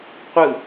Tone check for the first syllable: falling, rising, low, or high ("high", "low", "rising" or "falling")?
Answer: falling